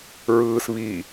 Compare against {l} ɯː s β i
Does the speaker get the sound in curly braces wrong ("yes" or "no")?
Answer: yes